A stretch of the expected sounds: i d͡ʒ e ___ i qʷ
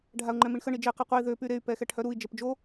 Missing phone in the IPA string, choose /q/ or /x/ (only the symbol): q